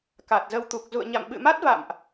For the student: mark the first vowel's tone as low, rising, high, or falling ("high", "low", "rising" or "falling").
low